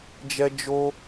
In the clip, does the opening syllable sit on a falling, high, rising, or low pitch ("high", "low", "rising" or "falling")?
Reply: high